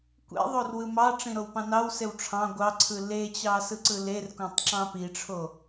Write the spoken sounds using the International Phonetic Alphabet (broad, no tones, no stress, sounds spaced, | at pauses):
kʷ ḛ ðˤ o r w ɯ m ɑ ʈ͡ʂ ĩ ɾ o w p ɑ̃ n ɑ w s e w ʈ͡ʂʰ ɑ̃ ɡʷ ɑ ǀʰ ɯ l e t͡ɕ ɑ s ɯ ǀ ɯ l e r k õ tˤ ǁ ɑ̃ p i ʈ͡ʂʰ o